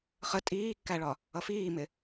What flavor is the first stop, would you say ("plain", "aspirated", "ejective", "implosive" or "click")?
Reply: ejective